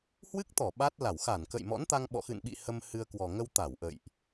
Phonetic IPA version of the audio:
h w ɨ˦˥ k̚ t̪ ɔ˧˩ ɓ a˦˥ t̚ l a˧˩ w x a˧˩ n k ə̰˧˨ j m ɔ̰˧˥ n t̪ a˧ ŋ ɓ ɔ̰˧˨ x ɨ̰˧˨ n ɓ ḭ˧˨ h ə˧ m h ɨ˧ ə̯ k w ɔ˨˩ ŋ ə˧ w t̪ a˧˩ w ʔ ə̰˧˨ j ʔ

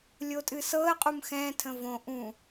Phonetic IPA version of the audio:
lʲ o tʼ ɨ s ɤ ə̯ qʼ u m x ɛ̃ tʰ ə̃ v õ ʔ ũ

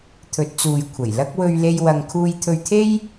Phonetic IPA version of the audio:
t̪ʰ ɵ˨˥ t̚ t͡s uː˨ j kʷʰ ɐ˨˩ j l ɐ˥ k̚ w ɵ˧ ɥ l e˧ j w ɐ˨ ŋ kʰ uː˧ j t̪ʰ ɵ˧ ɥ t̪ʰ e˥ j

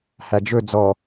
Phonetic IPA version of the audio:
h æ d͡ʒ ɵ d͡z ɔ

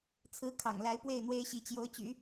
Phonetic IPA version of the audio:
t͡sʰ ɹ̩˧˥ kʰ ɑ̰˨˩ ŋ l a˧˥ ɪ̯ p w e˥˩ ɪ̯ n̪ w e˥ ɪ̯ ɕ i˧˥ t͡ɕ j o˧˥ ʊ̯ t͡ɕ y̰˨˩˦

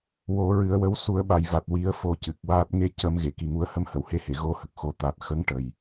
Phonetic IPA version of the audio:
w o˨˩˦ ɹ ɨ˨˩˦ ə̯ w ə˧˥ w s u˨˩˦ ə̯ ɓ a˨˩ j v a˨˩ t̚ w i˨˩˦ ə̯ f o˧ c ɨ˨˩ k̚ w aː˦˥ t̚ ŋ e˧ c ə˨˩˦ m ɣ e˨˩˨ k i˨˩ ŋ u˧ ə̯ h ə˧˥ m h ə˨˩˨ w h e˧ h e˨˩˨ ɣ o˧ h ə˨˩ k̚ x o˨˩˦ t̪ a˨˩ t̚ x ə˧˥ ŋ ʈ ə˨˩ j

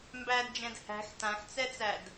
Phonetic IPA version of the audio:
m b æ d d͡ʒ ɛ̃ d h æ̤ x t ã x t͡s ɛ t͡s æ d

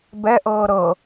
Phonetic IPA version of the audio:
b ɛ ʔ ɤː ɾ ɤ

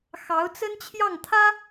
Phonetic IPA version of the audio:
x ɑ˧˥ ʊ̯ t͡s ə˥ n t͡ɕʰ j ɑ˥˩ ŋ t̪ʰ ä˥

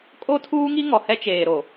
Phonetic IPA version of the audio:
kʼ o˦ tʰ uː˦ ŋ i˦ ŋ ɔ˨ h ɛ˦ t͡ʃ eː˨ ɾ o˨

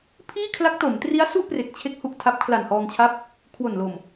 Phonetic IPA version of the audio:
pʰ iː˥˩ kʰ l a˦˥ k̚ t o˩˦ m t r i˦˥ a̯ s u˥˩ ʔ p r e˨˩ k̚ t͡ɕʰ e˦˥ k̚ h u˨˩ ʔ tʰ a˦˥ p̚ kʰ l a˨˩ n h ɔː˧ ŋ t͡ɕʰ a˦˥ p̚ | kʰ w o˨˩ n l o˨˩ m

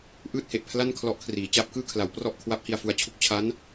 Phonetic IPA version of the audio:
ʔ ɯː˥˩ t̚ h e˨˩ ʔ pʰ l a˥˩ n kʰ l ɔ˦˥ ʔ kʰ r iː˩˦ t͡ɕ a˦˥ p̚ k ɯː˥˩ kʰ l a˩˦ w p r ɔ˥˩ ʔ kʰ w a˦˥ p̚ h i˨˩ a̯ f u˨˩ a̯ t͡ɕʰ u˦˥ k̚ t͡ɕʰ a˦˥ n

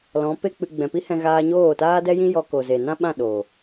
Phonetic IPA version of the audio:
l ɔ̃˨˦ p e˦ k͡p ɨ˧ ɡ͡b ɛ̃˨ p i˦ h ɛ̃˧ ɣ aː˧ ɲ oː˦˨ t aː˦ d ɛ˦ j ĩ˦ j ɔ˧ k o˨ z e˨ n ã˦ ɓ ã˦˨ ɗ o˨

